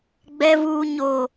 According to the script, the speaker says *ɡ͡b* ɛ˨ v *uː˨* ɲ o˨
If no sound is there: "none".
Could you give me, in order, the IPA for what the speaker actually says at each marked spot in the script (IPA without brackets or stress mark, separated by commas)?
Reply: ɡ͡b, uː˨